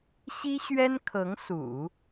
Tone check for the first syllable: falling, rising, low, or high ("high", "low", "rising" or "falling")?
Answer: high